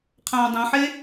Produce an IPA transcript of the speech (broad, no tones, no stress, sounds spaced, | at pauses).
qʰ ãː dˤ ũ ħ e